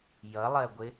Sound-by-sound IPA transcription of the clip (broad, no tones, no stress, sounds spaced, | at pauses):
j ʌ lˠ ɜ ɡʷ ɪ